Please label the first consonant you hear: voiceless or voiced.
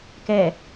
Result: voiceless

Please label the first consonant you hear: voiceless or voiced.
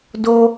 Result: voiced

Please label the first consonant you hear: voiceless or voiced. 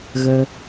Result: voiced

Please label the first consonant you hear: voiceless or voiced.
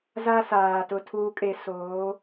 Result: voiced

